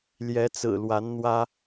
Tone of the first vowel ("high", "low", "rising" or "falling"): rising